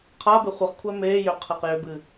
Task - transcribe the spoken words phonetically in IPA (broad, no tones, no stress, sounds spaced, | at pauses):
qʰ a b e χʷ ɨ χ kʷʰ æ m e j ʏ qʰ e q j ʏ b ɨ